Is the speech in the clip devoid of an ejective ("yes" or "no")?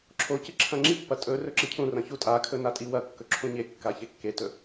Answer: no